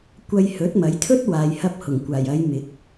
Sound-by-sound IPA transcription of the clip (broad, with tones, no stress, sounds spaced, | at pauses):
kʷ ɐ˧ j h ɵ˨˥ t̚ m ɐ˨˥ j t̪ʰ ɵ˥ t̚ w aː˨ j h ɐ˧ p̚ h ʊ˨˩ ŋ kʷ aː˨˩ j ɐ˨˧ j m ɪ˨˥ k̚